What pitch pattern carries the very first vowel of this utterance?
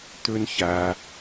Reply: high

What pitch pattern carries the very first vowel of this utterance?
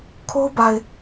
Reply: high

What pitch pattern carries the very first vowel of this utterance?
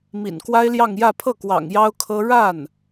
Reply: low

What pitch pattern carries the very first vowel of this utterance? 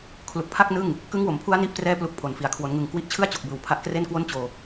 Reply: low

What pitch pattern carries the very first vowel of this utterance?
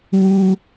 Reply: high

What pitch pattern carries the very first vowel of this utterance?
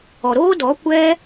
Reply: low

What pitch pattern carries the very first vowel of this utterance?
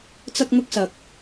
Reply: high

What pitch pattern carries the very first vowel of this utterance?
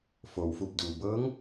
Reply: low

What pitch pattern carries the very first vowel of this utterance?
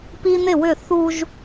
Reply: high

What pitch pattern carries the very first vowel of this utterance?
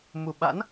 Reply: low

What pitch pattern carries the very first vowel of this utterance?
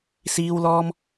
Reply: high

